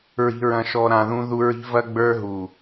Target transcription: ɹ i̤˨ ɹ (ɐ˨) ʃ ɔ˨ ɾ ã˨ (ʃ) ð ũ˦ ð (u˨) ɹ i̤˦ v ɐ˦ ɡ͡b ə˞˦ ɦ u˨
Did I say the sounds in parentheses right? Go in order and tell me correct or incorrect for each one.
incorrect: ɐ̃˨, incorrect: none, incorrect: u˦

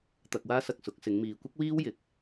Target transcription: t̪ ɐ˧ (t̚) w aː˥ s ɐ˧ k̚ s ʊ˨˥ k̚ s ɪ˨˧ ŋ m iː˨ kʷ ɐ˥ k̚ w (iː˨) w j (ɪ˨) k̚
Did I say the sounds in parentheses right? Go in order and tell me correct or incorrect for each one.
incorrect: k̚, incorrect: iː˥, correct

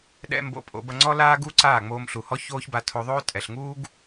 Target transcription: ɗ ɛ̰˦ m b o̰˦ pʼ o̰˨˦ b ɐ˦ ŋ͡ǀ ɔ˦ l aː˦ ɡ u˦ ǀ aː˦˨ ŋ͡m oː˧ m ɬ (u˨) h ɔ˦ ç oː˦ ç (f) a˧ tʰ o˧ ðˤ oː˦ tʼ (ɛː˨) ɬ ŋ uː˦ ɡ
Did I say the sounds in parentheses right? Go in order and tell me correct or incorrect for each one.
correct, incorrect: b, incorrect: ɛ˨

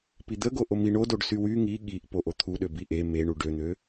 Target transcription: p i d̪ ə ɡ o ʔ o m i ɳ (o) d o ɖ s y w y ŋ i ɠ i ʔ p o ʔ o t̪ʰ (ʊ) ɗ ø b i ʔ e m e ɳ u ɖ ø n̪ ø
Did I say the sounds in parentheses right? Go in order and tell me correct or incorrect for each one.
correct, incorrect: u

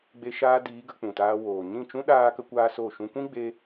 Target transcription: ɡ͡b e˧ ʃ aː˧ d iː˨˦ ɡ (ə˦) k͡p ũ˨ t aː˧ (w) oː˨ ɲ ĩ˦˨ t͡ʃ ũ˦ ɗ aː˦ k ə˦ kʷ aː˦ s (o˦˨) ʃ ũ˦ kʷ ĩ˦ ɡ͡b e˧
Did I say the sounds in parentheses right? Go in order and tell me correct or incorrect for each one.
incorrect: ə˨˦, correct, correct

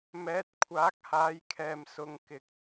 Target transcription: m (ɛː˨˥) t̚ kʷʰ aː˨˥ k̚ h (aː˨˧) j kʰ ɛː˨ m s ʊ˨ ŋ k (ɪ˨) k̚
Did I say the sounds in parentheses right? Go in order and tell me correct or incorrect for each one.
correct, correct, correct

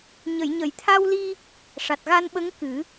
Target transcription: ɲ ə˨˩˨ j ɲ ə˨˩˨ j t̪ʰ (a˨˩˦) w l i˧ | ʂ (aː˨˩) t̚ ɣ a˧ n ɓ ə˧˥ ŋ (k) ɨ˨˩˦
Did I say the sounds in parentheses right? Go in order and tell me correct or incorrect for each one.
incorrect: a˧, incorrect: a˨˩, correct

